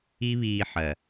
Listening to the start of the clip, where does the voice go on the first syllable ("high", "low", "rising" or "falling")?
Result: high